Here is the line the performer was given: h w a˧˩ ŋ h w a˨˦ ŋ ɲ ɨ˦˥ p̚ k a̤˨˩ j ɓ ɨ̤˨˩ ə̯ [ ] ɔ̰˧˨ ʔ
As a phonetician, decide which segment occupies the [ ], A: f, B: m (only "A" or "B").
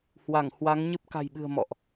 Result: B